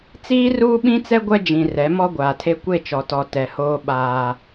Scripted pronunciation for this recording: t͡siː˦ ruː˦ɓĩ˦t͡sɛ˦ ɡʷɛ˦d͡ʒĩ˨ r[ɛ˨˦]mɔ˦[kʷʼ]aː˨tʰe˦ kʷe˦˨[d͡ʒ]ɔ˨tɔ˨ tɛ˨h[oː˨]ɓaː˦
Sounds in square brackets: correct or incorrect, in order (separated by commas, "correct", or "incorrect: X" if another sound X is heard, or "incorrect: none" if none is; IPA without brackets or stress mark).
correct, incorrect: ɡʷ, incorrect: t͡ʃ, incorrect: oː˦